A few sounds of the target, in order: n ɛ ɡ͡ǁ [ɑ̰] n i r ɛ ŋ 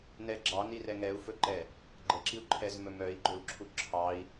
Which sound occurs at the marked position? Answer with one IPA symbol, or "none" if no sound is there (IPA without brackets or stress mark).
ɑ